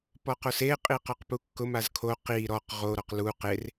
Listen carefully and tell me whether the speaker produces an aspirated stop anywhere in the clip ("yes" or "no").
yes